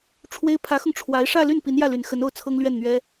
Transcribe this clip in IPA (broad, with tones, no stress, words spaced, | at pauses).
ʈ͡ʂʰwe˥ɪ̯ pʰä˧˥xʊ˧ŋ ʈ͡ʂʰwa˧˥ɪ̯ ʂä˥˧ly˥˩n pi˧˥njä˥˩ly˨˩n xə˧˥no˥˩ʊ̯t͡sʰɤ˥ŋ lɥɛ˥˩nn̪ɥɛ˥